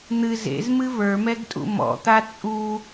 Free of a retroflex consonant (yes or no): yes